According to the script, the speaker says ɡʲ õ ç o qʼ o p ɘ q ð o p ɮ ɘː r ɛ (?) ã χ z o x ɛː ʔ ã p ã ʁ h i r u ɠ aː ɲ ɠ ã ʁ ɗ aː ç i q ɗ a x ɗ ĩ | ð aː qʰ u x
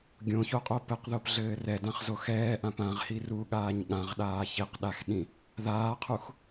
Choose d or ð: d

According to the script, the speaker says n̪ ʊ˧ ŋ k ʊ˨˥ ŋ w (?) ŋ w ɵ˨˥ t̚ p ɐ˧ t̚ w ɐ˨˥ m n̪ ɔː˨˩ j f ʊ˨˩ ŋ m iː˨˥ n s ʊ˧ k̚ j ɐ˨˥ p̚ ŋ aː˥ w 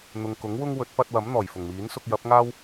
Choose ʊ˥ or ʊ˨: ʊ˥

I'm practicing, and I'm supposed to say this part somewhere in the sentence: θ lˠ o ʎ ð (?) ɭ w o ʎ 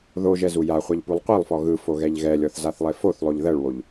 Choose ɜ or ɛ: ɜ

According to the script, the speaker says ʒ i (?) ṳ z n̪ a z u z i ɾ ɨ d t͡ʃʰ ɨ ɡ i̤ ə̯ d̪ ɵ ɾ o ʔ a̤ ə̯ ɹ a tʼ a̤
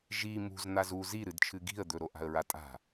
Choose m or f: m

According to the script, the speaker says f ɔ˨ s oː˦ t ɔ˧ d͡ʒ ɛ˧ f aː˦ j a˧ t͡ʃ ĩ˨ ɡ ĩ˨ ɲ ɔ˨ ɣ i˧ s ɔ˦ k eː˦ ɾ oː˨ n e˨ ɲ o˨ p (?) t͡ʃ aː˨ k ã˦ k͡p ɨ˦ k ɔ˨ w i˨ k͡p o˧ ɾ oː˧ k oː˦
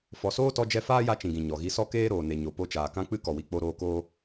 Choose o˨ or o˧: o˧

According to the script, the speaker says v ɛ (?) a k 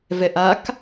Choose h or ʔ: ʔ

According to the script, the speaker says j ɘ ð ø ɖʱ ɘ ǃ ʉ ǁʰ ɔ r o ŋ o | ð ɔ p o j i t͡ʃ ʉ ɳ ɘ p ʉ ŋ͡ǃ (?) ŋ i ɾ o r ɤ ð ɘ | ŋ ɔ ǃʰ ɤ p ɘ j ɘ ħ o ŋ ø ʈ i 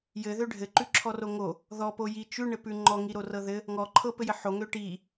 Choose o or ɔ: ɔ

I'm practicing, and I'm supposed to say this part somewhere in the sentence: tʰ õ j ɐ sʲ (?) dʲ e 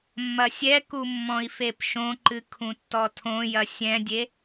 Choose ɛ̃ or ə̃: ɛ̃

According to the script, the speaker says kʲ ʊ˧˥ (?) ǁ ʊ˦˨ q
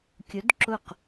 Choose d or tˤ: d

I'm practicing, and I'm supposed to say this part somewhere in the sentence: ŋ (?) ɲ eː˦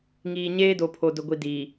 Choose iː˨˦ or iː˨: iː˨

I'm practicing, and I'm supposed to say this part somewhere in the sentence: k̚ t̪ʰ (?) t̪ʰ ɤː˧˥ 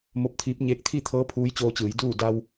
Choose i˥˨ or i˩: i˥˨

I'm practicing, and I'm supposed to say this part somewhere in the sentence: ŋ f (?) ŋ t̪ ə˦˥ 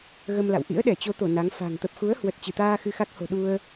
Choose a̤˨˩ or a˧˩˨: a̤˨˩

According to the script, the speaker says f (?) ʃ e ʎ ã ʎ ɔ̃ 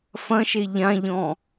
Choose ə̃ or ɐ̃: ɐ̃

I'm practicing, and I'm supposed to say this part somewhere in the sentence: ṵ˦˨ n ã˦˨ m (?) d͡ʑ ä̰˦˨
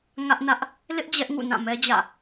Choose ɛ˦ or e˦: ɛ˦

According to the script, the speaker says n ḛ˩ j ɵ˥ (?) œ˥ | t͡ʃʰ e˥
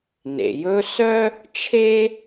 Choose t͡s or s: s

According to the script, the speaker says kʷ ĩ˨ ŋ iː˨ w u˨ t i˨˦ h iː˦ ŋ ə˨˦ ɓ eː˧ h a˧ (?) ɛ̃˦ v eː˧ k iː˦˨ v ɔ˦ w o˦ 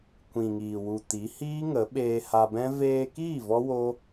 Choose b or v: b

